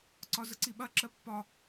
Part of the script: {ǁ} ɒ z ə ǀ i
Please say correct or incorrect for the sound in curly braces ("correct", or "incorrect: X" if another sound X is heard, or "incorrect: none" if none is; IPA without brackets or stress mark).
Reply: incorrect: ǀ